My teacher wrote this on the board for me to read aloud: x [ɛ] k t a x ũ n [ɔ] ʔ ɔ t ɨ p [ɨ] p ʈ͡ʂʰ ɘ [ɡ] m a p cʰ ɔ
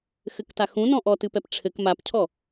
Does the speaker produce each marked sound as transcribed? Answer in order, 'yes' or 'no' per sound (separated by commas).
no, no, no, no